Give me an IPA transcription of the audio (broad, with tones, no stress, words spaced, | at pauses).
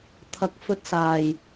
t̪ʰɐ˨˥k̚fɵ˧t̚saː˨˩j